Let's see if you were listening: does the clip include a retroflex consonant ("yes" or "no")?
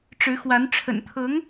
yes